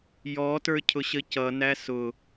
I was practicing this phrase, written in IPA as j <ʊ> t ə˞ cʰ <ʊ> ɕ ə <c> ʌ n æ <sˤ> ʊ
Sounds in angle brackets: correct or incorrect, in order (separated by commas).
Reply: incorrect, correct, correct, incorrect